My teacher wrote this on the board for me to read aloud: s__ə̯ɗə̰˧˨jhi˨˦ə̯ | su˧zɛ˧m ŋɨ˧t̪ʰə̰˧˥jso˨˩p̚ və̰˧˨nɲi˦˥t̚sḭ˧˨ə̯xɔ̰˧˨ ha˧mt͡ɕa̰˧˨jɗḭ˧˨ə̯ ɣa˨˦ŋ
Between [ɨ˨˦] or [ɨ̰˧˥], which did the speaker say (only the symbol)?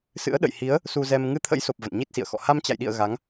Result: ɨ̰˧˥